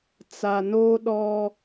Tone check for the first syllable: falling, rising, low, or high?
low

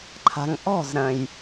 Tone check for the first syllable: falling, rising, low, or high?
low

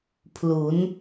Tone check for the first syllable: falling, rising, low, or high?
rising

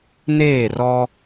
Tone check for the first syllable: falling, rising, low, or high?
falling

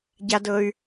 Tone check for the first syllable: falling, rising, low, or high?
low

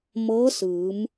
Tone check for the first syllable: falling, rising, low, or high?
rising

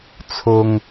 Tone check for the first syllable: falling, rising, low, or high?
low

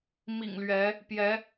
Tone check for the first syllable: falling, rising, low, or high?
low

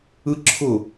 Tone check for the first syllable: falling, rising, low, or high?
high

